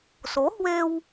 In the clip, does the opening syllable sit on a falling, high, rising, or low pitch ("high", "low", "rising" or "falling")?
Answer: rising